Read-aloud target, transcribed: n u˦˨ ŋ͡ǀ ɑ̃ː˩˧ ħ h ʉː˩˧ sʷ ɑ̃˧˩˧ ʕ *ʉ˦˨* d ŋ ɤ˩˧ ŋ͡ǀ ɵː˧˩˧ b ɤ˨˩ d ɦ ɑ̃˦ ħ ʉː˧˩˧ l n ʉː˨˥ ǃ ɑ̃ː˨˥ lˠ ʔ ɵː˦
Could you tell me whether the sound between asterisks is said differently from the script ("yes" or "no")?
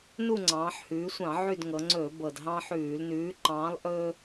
no